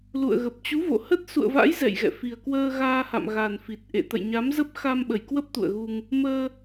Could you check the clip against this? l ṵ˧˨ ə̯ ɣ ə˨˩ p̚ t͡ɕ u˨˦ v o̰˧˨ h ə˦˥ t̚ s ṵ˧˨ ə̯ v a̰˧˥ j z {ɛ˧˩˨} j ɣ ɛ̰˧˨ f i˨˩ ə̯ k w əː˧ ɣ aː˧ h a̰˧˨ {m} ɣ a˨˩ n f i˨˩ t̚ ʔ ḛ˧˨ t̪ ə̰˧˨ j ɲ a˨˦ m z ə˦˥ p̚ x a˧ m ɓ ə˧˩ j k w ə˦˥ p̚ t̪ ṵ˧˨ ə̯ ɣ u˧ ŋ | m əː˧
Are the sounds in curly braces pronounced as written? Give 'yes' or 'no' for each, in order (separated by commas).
no, yes